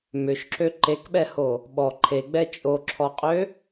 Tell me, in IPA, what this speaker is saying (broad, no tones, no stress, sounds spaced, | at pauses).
m ʏ ʃ ǁ ø ǃ e k ɓ ɛ h o | ɓ ɔ ǃʰ e ɡ͡b ɛ t͡ʃʼ o ǁʰ ɔ qʼ ø